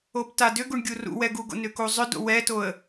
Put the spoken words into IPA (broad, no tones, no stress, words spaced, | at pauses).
obtadʏɡuɳ ɡʲurṵwɛ ɡuɡo̰ nʏkuzˤʏdo̰ wɛtoə̯